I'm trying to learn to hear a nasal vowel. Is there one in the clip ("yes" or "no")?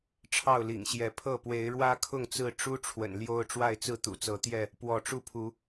no